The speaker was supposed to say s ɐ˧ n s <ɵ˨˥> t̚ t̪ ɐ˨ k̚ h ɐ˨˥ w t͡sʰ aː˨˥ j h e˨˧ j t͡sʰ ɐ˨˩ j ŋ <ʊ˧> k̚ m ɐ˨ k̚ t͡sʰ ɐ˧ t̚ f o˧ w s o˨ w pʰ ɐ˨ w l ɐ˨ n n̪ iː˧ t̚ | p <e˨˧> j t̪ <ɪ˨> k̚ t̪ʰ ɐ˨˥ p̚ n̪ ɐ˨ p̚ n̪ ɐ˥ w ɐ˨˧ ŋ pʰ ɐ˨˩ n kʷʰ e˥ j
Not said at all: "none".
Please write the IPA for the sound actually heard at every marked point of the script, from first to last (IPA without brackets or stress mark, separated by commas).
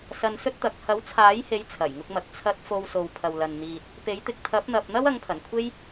ɵ˥, ʊ˧, e˨˥, ɪ˨